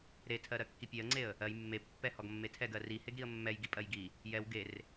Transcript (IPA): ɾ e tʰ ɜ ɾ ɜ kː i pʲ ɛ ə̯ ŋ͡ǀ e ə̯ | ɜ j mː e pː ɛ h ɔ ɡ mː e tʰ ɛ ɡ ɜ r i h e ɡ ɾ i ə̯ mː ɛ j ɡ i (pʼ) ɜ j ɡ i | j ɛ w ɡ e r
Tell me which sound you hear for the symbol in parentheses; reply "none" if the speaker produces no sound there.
pʼ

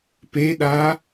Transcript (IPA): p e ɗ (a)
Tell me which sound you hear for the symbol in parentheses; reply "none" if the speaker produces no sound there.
a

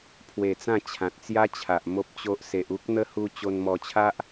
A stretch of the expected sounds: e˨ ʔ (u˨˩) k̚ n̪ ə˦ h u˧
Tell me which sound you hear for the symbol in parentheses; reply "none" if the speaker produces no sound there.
u˦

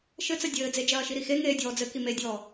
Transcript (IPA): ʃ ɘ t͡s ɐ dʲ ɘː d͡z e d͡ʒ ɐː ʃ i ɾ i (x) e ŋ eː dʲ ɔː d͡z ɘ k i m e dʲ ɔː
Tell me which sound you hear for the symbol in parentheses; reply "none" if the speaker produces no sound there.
x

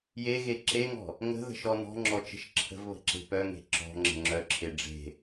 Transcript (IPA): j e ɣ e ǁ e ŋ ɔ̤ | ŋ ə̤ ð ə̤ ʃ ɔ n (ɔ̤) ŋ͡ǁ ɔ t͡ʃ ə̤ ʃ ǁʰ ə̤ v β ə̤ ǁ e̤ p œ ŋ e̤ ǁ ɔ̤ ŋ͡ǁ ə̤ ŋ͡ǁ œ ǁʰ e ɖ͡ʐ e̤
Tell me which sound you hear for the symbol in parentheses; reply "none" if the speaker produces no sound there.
ɔ̤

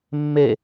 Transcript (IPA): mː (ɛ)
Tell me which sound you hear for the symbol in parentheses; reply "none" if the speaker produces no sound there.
e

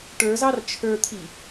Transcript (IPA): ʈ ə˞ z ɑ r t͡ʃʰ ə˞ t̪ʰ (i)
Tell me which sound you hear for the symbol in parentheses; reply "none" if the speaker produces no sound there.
i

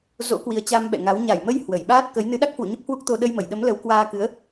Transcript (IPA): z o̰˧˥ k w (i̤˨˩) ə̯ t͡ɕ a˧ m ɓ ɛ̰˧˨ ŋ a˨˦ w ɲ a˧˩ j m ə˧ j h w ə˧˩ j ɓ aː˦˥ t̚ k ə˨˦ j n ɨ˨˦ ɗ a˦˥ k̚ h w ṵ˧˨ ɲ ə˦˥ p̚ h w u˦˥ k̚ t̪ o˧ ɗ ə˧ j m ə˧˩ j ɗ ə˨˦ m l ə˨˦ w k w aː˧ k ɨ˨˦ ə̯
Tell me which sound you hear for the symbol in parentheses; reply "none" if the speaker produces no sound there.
i˨˦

